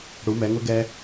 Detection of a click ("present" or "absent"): absent